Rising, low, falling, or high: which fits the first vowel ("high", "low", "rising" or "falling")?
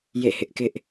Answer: falling